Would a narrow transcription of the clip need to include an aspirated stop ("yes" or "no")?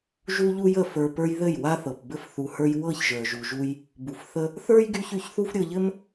no